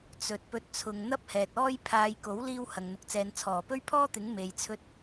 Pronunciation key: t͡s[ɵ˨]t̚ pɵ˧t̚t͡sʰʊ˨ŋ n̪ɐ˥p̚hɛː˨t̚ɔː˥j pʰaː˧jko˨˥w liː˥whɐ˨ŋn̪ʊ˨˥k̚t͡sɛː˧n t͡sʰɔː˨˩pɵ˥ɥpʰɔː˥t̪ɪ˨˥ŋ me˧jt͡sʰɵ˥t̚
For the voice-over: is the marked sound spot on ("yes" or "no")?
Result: yes